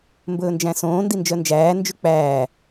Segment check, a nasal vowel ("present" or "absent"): present